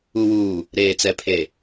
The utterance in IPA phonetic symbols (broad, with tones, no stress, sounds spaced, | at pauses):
u˨ w uː˨ | ɾ eː˨ t͡s ɛ˨ pʰ e˨